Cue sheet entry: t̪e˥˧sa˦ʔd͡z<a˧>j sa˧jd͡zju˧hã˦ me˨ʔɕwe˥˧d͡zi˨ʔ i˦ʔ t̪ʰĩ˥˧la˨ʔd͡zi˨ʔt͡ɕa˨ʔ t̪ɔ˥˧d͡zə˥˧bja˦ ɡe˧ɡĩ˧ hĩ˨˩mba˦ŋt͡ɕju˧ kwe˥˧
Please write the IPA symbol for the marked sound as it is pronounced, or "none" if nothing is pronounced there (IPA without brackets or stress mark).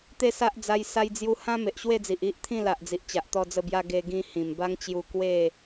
a˧